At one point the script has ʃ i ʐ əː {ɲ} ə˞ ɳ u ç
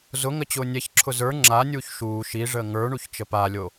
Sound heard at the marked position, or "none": ŋ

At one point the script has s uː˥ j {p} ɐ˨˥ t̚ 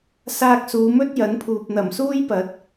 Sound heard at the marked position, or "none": p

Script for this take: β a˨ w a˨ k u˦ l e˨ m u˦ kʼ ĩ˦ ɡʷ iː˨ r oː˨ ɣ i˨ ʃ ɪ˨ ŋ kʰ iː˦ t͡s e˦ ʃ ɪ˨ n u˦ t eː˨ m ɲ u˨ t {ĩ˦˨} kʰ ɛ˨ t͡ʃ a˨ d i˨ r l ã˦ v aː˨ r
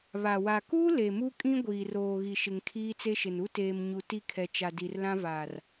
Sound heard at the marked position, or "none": i˦˨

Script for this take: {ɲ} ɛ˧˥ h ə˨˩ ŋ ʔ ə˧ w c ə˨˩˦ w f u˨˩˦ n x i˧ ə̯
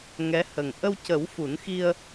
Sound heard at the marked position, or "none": ŋ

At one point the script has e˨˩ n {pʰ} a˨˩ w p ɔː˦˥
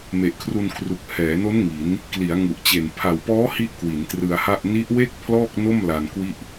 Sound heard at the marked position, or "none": pʰ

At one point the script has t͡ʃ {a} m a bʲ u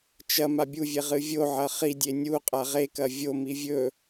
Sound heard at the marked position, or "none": ɐ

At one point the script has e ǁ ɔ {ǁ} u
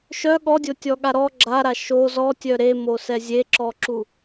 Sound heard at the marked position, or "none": ǁ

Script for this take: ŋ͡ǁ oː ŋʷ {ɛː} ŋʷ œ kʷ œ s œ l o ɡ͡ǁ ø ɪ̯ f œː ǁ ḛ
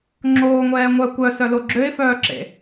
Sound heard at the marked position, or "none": ɛː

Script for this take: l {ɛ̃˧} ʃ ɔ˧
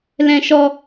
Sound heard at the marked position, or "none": ɛ̃˧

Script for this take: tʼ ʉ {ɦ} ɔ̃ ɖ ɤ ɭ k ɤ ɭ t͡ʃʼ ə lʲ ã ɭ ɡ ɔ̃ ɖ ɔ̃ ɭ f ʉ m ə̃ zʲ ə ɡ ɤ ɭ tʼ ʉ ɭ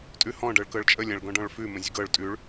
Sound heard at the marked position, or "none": h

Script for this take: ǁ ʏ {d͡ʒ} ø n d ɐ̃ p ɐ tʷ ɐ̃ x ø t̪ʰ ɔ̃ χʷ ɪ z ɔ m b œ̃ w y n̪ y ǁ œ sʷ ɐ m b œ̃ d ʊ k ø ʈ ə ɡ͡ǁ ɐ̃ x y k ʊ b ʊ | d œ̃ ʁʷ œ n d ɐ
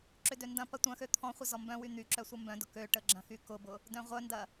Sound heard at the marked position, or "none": d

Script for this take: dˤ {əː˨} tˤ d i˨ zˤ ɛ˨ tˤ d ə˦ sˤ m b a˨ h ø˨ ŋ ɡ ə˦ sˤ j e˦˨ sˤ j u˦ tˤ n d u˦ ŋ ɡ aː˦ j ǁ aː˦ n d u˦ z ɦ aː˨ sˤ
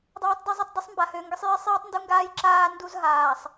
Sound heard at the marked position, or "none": aː˨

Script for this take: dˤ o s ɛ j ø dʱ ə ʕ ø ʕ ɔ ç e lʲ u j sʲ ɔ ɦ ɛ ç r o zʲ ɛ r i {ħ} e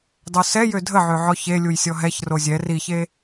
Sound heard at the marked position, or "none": ç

